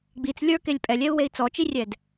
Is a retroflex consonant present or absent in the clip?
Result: absent